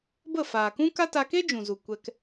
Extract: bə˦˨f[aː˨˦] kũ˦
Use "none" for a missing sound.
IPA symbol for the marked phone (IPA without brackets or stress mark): aː˨